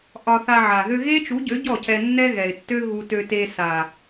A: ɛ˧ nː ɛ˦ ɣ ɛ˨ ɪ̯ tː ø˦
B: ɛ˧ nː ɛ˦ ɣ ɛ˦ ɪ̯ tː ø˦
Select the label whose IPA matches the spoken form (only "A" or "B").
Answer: A